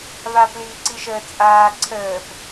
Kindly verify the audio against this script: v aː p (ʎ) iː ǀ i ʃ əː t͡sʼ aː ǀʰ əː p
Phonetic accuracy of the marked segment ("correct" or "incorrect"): incorrect